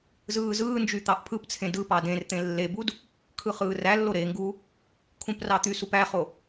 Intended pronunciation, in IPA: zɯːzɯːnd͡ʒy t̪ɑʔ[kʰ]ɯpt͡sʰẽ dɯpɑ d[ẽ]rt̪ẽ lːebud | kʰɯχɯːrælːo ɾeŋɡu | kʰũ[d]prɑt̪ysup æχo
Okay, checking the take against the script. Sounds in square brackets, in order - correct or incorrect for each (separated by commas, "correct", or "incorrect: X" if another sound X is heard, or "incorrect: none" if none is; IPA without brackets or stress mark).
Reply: incorrect: pʰ, correct, incorrect: none